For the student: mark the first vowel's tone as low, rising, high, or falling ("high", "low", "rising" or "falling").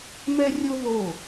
high